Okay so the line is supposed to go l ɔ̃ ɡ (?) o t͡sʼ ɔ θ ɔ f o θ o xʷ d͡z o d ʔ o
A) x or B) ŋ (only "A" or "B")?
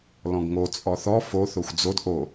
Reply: B